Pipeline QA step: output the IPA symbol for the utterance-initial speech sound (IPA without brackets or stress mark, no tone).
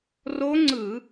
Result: r